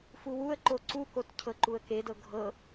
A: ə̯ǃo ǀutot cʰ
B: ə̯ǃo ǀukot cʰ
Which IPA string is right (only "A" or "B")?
B